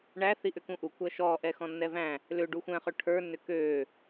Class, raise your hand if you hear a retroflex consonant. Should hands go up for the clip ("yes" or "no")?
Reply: yes